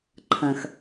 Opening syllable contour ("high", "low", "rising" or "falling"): low